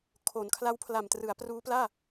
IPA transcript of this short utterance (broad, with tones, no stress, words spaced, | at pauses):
kʰo˩˦nkʰla˦˥wpʰla˨˩m trɯ˩˦a̯pruː˦˥ plaː˥˩